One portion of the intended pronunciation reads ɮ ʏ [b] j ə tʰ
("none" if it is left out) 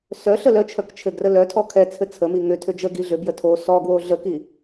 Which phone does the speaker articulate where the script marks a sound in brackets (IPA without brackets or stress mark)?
b